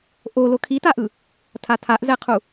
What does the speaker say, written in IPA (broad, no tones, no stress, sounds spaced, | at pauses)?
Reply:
ʔ o l o kʰ i t a ʔ ɯ | tʰ a tʰ a ʔ z ɛ qʰ u